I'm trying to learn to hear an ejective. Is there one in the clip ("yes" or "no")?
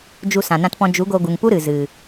no